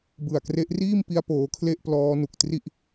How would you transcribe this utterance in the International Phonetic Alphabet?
b ɯ˨˩ a̯ k r e˦˥ ʔ r iː˥˩ m p i˦˥ a̯ p oː˦˥ kʰ l e˥˩ ʔ p l ɔː˦˥ n u˨˩ k̚ t r i˥˩ ʔ

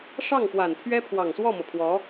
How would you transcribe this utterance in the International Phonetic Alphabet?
ʂ ɑ˥˩ ŋ p w a˨˩ n pʰ ɥ ɛ˥ pʰ w ɑ˨˩ ŋ s w ɔ˥˩ m ɤ˩ pʰ w ɔ˧˥

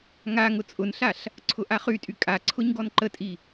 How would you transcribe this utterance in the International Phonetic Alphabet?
ŋ a ŋ ʊ t͡sʼ ʊ n ɬ a ɬ | ǀʰ ʊ ʔ a χ y tʼ y kʼ a ǀʰ ʊ ɲ ɡ ɔ n ǃ ə tʼ i

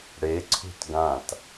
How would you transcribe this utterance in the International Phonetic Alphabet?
ɽ e ǀʰ ṳ t ɡ ã t

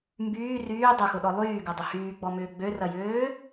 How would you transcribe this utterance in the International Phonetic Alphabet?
m b yː r yː dˤ ɐ x ʊ ɗ ɔ lˠ yː ɡ ɐ dˤ ʊ h yː ɡ͡b ɔ m ʏː ɡ͡b ø r ɐ j øː

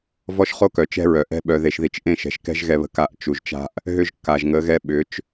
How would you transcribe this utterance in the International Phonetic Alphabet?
v ɔ˦ ʃ χ o˦ k œ˨ t͡ʃ ɛ̤˦ ɹ œ˨ ʔ ɛ̤˦ ɓ œ˨ ð e˨ ʃ ð i˨ t͡ʃ ʔ ẽ˦˨ ʃ ɛ̤˨ ʃ k ɛ̤˦ ʒ ɣ ɛ˦ β ə̤˦ k a˦˨ ʔ t͡ʃ u˨ ʒ t͡ʃ a̤˦ ʔ | ɦ ʏ˦ ʒ kː a˨ ʒ ŋ ə˨˦ ɣ ɛ˦ ɓ ʏ˨˦ t͡ʃ

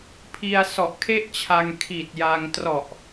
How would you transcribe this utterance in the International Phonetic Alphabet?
pʰ i˧ a̯ s ɔ˨˩ ʔ kʰ e˥˩ ʔ t͡ɕʰ a˧ ŋ kʰ i˨˩ t̚ j a˧ ŋ t r ɔ˨˩ ʔ

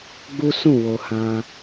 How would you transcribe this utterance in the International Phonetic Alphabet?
ɡ͡b u˦ s ũ˦˨ w o˨ h ã˧

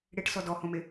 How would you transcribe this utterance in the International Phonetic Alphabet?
ɽ e ʈ s ɔ d ɔ h õ m e

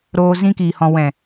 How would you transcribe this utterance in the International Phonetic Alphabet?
ɾ oː˧ z ĩ˧ k iː˨ h ɔ̃˨ w ɛ̃˨

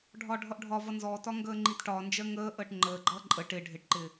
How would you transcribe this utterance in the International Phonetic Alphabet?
ɖʱ ɒ ɖʱ ʌ ʔ ɖʱ ɒ v ʌ n z ɔ t ɒ ŋ ɡ əː ŋ͡ǃ i t ʈ ɒː n d͡ʒ ɜ ŋ əː ʔ əː ʈ ŋ͡ǃ əː ɡ͡ǃ ʌː ǃʼ ə ʈ ɪ ɖʱ ɪ ʈ ǃ ɪ

